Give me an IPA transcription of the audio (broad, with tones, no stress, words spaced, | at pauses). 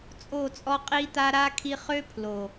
t͡sʼo˦˨t͡sʼɔ˦qʼi˦t̪a˦ ɾa˧ kʰi˧χø˦ pʰlo˨